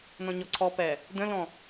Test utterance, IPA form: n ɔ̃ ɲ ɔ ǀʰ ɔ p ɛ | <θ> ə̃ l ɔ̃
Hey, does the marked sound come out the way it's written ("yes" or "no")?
no